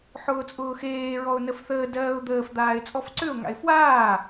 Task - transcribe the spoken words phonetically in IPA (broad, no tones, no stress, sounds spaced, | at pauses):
ħ ʊː t͡sʼ ʊː x eː ɹ ɔ ʊ̯ n ə f θ əː d ɜː ʊ̯ d̪ əː f d̪ aː ɪ̯ t͡sʼ ɔ f ǀ ʏ ʊ̯ ŋ a̰ ɪ̯ f w aː